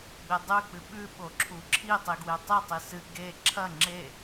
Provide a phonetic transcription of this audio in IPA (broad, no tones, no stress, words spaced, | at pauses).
ɡ͡bedˤʉ k͡pɨɓʉ ɓoǁʰuǁʰi tˤiɡwetˤi tˤisɨ ɡe ǁʰɐ ŋ͡ǁe